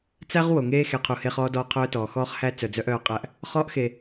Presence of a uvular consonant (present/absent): present